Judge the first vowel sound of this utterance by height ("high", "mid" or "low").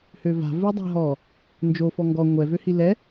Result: mid